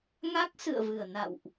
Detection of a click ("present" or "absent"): absent